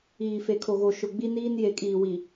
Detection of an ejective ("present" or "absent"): present